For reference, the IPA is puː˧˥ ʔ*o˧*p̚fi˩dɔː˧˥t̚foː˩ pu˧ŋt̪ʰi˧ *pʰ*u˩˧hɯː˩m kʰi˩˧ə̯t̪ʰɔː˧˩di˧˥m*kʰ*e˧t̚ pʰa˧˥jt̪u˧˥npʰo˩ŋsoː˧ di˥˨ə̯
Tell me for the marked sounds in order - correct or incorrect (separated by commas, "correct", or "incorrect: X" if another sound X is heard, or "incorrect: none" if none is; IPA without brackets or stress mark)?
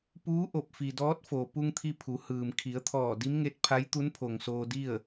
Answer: incorrect: o˧˩, correct, incorrect: ŋ